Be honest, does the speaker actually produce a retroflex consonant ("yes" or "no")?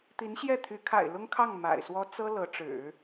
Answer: yes